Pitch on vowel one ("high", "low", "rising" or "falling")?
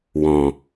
low